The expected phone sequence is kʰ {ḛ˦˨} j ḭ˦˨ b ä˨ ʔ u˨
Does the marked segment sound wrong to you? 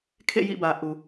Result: no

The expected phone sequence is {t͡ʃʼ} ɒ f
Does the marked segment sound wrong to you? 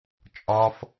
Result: no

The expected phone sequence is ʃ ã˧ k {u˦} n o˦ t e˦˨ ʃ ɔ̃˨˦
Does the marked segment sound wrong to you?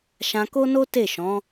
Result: yes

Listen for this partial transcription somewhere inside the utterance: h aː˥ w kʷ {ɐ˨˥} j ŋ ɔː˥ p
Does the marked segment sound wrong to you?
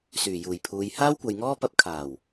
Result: yes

